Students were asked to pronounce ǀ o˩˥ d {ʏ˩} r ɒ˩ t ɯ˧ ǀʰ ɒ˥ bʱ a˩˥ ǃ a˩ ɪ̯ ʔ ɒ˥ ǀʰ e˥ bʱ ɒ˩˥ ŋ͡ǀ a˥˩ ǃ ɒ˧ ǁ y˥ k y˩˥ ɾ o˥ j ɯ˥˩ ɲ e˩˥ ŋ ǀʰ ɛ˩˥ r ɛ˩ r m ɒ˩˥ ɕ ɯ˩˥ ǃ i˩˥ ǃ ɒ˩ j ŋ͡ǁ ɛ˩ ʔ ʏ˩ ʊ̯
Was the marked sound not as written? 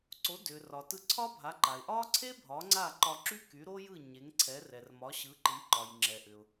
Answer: no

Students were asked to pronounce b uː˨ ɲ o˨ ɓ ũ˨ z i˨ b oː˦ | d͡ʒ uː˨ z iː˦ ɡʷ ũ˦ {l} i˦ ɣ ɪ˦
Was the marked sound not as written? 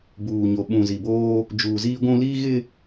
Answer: no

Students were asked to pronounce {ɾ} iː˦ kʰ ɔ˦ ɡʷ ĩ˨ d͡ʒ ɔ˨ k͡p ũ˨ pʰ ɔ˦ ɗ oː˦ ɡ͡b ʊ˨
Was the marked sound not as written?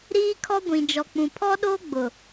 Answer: no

